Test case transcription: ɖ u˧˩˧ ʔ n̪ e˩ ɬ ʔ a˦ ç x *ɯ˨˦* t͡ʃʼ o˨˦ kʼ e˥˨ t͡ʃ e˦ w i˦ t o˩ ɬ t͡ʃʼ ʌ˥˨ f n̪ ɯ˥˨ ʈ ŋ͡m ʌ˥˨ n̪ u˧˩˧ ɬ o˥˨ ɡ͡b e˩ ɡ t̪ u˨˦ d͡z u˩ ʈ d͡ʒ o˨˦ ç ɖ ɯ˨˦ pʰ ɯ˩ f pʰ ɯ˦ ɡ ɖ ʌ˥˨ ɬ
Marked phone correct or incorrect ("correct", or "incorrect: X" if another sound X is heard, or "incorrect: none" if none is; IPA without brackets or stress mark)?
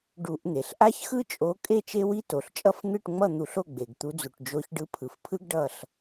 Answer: incorrect: ɯ˦